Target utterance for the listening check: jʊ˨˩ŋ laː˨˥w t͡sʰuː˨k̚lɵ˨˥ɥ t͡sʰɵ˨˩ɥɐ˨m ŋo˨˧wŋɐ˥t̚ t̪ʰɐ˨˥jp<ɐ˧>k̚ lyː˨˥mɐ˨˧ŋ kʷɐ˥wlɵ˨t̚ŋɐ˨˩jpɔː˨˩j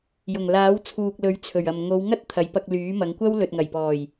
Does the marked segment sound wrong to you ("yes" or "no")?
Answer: no